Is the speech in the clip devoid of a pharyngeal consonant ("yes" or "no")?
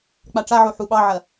no